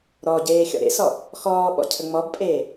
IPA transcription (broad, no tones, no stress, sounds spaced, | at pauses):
ɾ ɔ ɟ eː xʲ ɔ̰ ɾ ḛ s ɔ | x ɔː ɓ ɔ̰ cʰ ə ŋ͡m ɔ b pʼ eː